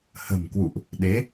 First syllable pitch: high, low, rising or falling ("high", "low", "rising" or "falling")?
low